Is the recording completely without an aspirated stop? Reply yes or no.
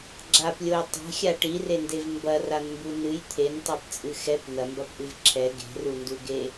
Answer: no